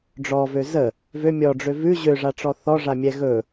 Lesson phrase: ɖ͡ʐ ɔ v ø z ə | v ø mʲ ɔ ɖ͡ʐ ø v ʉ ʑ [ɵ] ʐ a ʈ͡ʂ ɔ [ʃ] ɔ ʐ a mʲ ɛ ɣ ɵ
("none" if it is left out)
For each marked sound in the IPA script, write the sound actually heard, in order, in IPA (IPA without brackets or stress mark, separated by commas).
ø, θ